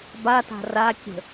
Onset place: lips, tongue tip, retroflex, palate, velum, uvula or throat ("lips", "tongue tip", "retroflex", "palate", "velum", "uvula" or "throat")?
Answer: lips